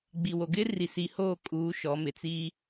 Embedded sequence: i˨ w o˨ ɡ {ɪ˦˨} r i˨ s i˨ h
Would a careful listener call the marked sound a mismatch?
yes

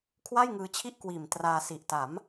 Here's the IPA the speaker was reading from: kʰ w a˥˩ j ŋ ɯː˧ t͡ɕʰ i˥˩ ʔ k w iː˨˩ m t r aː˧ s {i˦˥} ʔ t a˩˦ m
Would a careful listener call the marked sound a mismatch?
yes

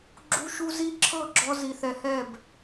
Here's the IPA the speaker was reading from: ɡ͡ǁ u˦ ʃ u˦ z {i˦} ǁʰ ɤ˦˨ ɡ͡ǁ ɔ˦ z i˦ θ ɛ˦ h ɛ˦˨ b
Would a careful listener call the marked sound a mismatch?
no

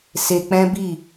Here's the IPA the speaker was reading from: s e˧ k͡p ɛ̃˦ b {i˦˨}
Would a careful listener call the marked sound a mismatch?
no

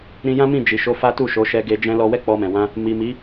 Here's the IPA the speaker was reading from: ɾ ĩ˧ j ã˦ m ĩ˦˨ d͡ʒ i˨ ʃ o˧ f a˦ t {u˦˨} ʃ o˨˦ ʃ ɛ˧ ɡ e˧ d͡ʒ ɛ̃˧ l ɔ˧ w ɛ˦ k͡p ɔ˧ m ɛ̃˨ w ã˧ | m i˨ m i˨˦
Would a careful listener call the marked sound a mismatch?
no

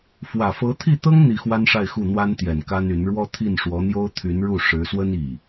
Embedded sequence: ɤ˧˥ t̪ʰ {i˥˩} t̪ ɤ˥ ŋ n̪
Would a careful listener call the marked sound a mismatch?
no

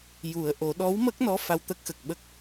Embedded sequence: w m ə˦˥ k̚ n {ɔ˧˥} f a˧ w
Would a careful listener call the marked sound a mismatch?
no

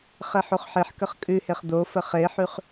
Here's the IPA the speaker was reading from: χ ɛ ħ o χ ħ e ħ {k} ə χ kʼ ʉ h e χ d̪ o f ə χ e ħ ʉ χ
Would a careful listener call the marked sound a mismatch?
no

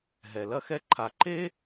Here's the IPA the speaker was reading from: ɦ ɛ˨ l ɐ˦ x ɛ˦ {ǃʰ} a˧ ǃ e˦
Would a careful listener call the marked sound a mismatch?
no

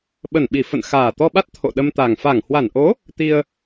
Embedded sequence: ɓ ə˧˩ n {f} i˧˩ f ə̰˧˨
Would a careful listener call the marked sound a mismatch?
yes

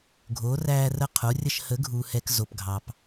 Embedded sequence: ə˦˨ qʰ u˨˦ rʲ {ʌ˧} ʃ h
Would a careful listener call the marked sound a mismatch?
yes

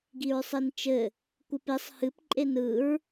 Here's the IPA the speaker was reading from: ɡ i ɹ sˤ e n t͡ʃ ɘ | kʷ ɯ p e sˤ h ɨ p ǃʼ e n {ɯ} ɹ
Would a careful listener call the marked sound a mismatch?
no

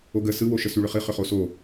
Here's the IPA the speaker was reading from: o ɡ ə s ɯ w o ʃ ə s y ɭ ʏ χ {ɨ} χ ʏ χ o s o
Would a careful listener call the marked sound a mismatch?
no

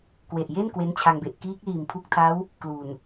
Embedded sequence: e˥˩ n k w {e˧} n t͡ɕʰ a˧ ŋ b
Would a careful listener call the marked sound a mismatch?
yes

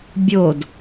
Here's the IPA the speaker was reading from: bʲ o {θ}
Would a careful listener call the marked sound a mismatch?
yes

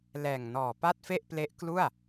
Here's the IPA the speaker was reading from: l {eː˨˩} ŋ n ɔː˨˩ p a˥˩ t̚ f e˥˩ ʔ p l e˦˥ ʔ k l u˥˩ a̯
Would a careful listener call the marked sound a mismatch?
yes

